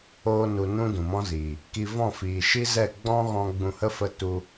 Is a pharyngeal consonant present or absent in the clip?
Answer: absent